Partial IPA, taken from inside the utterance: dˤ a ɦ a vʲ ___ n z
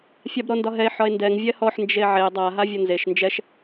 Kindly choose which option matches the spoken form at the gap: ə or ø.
ə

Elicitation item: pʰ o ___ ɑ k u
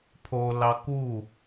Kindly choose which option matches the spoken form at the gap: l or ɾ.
l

